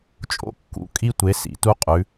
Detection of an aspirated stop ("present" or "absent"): absent